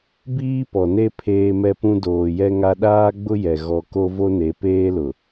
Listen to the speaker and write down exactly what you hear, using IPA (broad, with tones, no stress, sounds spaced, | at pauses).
b iː˦ p ɔ˨ n e˦ pʰ eː˦ m ɛ˦ p ũ˦ d oː˨ j ɛ˦ ŋ a˦ ɗ aː˦ ɡ͡b ʊ˦ j ɛ˨ ɣ ɔ˨ k o˦ v o˦ n e˨˦ p eː˦ l ʊ˨